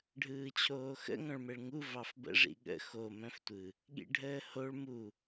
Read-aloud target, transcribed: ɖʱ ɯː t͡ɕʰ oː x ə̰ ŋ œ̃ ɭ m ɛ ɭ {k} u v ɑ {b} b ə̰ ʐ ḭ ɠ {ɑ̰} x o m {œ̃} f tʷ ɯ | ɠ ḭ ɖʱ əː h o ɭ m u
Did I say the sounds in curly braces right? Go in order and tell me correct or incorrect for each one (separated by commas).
incorrect, incorrect, incorrect, correct